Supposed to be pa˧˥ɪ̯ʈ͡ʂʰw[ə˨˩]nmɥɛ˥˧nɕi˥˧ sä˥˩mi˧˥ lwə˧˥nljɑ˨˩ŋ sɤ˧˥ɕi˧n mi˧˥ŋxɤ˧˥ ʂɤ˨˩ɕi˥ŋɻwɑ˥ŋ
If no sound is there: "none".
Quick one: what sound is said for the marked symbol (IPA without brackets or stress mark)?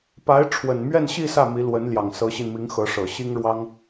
ə˨˩